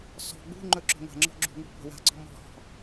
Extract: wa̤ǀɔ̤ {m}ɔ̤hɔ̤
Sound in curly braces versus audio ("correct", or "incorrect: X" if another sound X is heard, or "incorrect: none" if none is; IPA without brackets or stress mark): correct